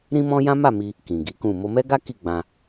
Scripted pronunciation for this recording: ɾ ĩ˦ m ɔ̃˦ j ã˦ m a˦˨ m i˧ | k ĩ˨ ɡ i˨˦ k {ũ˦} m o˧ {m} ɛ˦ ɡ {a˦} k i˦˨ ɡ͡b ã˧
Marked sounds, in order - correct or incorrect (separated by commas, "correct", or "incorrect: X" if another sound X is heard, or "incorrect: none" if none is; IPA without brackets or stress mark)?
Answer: incorrect: ũ˦˨, correct, correct